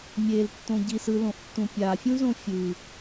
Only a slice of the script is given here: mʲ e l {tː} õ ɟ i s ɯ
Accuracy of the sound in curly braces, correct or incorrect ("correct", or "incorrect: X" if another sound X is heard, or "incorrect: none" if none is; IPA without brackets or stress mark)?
correct